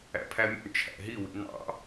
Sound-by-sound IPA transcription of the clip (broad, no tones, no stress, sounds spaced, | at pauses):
æ̰ pʰ æ mʲ ɔ̰ ɳ t͡ʃʰ æ̰ ɦ i w ḭ n ɑ̰